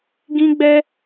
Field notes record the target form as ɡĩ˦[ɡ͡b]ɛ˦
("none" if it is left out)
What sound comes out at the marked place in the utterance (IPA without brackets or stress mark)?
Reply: ɡ͡b